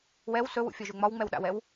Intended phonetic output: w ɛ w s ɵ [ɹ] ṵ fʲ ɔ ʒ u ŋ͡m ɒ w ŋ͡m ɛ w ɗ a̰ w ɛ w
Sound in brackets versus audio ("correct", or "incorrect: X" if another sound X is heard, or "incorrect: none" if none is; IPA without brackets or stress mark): incorrect: w